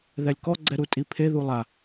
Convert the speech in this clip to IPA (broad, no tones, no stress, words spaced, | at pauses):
ðɛlʲkɔ ɡ͡ǀɛɾutʼipʰe ðulˠa